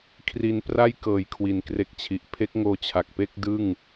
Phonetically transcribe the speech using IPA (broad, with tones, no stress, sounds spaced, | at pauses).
kʰ r i˨˩ n p r a˥˩ j k ɤː˨˩ j kʰ w i˩˦ n k r e˦˥ k̚ t͡ɕʰ i˨˩ ʔ pʰ e˦˥ k̚ ŋ oː˧ t͡ɕʰ a˨˩ k̚ p e˥˩ k̚ d ɯ˥˩ ŋ